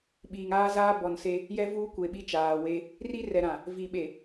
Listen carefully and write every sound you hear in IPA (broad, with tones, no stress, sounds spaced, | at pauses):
ɓ iː˨ ŋ aː˦ z aː˦ b ɔ˨ n s e˦ | j ɛ˦ v uː˦ kʷ e˨ ɓ i˦ t͡ʃ aː˨ w e˦ | r i˦ r ɛ˨ ɾ ã˨ | v i˨ ɓ e˨